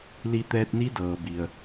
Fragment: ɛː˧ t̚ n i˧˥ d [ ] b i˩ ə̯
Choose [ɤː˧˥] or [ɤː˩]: ɤː˩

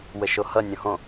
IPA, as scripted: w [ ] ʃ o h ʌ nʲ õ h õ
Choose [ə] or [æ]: ə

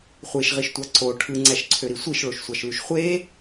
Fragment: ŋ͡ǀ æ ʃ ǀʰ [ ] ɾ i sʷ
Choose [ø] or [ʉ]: ø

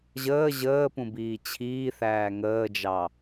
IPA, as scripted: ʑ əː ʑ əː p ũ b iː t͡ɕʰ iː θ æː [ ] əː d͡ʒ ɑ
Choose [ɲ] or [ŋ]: ŋ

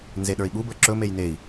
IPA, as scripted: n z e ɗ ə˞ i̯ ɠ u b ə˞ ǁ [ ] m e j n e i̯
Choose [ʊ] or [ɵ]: ɵ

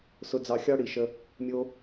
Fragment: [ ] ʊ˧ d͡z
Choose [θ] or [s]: s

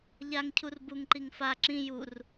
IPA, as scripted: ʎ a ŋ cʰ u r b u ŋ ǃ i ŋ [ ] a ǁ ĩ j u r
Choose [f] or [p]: f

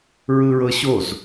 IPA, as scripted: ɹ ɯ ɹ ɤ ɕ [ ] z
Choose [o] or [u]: o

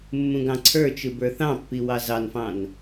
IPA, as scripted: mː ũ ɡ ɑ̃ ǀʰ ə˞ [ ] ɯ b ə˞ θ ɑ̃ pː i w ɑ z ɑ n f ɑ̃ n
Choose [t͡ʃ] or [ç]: t͡ʃ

